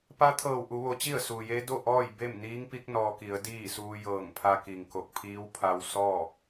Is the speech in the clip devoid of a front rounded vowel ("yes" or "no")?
yes